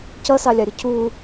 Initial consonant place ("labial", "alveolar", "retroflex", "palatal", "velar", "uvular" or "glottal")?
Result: palatal